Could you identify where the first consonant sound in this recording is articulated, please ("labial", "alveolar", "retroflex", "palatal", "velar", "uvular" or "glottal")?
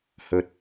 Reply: glottal